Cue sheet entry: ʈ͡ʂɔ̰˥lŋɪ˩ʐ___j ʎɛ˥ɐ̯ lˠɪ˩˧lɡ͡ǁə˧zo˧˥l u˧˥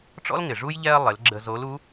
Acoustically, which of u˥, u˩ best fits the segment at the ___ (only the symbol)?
u˥